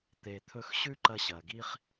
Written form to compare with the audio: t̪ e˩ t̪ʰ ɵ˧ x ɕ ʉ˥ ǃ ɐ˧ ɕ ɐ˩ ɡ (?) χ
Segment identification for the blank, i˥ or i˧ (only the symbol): i˥